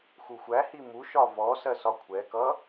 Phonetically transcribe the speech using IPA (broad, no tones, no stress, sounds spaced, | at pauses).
x u xʷ æ h i m u ʃ ɒ v ɔ s ɜ s ɒ kʷʰ ɛ k ʌ